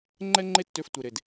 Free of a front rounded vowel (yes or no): no